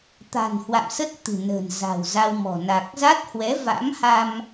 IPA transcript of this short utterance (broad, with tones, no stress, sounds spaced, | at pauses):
t̪ a̤˨˩ n h w a̰˧˨ m s ə˦˥ t̚ t̪ ɨ̤˨˩ n ə̤˨˩ n z a̤˨˩ w z a˧ w m ɔ̤˨˩ n a˨˩ k̚ z a˦˥ t̚ h w ɛ˨˦ v a̰˧˥ m h a˧ m